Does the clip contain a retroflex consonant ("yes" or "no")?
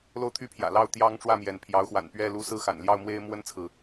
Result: yes